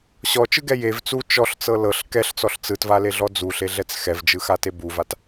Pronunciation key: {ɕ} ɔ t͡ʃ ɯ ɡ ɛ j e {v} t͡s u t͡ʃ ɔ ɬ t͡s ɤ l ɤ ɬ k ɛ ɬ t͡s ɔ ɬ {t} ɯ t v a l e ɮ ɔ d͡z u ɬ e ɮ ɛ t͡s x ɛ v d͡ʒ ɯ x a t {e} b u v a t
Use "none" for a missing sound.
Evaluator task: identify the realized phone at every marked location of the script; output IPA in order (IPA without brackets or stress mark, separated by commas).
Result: ɕ, v, t͡s, e